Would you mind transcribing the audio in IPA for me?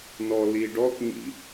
n ɔ l i ɖ ɔ k ɲ ḭ

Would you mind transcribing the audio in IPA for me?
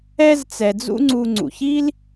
ɛ˦ z t͡s ɛ˩ d͡z ṵ˦ ŋ͡ǀ u˨ ŋ͡ǀ ṵ˩ ç i˥ l

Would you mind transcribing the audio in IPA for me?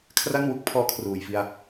kʰ r a˥˩ n w u˦˥ k̚ pʰ ɔː˦˥ kʰ r uː˨˩ j f i˧ a̯

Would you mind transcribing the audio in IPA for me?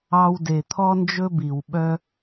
ɑ˧ w d e˨ t̪ʰ ɔ˦ n d͡ʒ ɵ˦ b i˨ w ɓ œ˦

